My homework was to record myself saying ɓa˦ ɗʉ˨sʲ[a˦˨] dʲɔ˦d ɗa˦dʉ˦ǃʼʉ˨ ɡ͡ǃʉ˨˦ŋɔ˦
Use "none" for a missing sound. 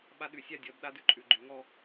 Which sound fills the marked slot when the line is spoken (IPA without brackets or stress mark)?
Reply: a˦˨